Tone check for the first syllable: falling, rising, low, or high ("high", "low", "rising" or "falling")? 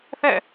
falling